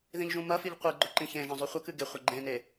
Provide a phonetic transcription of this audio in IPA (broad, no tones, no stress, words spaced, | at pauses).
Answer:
ðĩʎʒũmɐfiʎ qʷɨɡ͡ǃɵ ǃĩçẽʒɐ̃ zˤʉχʷɐkɨ ɡeχʷɐ ɡ͡ǃẽne